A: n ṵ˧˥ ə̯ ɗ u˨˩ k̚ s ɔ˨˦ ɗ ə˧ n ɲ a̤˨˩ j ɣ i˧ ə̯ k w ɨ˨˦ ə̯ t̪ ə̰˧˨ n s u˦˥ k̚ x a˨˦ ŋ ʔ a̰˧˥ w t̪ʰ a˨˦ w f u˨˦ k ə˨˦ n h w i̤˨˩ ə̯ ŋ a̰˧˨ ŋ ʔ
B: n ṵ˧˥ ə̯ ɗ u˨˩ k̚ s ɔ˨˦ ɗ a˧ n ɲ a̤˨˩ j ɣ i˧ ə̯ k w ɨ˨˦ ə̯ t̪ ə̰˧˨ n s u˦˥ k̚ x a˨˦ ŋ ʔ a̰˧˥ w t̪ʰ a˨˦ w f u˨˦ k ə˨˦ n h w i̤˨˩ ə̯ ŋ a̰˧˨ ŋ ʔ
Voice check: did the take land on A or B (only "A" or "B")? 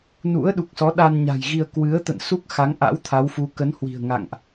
B